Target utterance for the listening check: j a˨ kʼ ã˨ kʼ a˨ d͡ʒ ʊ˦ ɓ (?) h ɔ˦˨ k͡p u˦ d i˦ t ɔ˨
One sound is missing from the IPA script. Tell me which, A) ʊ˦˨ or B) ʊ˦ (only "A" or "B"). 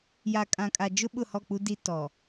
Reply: A